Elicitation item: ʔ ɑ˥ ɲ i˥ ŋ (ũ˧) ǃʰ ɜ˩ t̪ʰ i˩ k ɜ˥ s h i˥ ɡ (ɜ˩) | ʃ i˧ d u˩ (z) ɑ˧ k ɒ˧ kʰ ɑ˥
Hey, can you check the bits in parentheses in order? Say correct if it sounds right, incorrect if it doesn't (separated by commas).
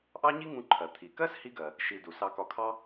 correct, correct, incorrect